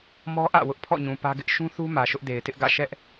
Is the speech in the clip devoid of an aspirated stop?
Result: no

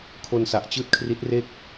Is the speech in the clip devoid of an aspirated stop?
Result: no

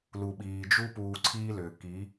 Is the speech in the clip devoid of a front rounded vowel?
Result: no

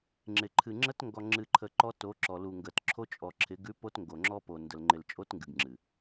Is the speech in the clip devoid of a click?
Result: no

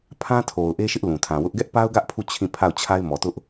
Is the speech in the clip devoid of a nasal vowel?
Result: no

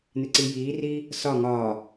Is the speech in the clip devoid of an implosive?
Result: yes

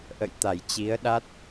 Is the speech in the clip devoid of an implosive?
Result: no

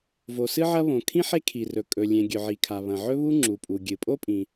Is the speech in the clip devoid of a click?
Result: no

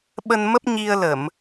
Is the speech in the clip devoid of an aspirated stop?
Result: yes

